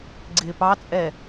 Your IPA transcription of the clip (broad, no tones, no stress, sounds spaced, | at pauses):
ɡ͡ǀ ɪː p ɑ t͡sʼ ɛ